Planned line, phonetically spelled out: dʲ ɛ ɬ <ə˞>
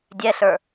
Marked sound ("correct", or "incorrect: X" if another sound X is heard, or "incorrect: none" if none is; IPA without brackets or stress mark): correct